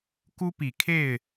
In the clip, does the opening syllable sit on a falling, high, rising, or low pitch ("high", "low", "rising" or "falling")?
high